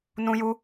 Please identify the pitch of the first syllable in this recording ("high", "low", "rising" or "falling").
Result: high